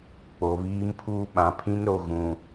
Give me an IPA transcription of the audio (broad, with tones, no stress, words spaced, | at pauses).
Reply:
k͡po˨βiː˦mpʰuː˦ ɓã˨pʰĩ˦nɾo˨ɣũ˨